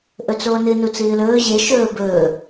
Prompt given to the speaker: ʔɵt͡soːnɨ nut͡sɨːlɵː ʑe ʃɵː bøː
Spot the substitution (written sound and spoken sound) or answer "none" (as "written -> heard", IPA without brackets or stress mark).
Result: øː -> ɵː